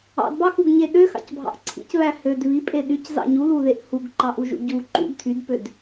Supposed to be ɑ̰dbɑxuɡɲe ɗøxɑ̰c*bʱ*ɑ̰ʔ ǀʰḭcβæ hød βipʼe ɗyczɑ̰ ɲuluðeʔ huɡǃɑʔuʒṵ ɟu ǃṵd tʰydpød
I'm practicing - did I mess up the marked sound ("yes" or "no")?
no